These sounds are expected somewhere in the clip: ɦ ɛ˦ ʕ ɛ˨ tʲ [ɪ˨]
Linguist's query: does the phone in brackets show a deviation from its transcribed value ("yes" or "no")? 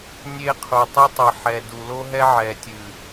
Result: yes